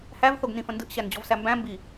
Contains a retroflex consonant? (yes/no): no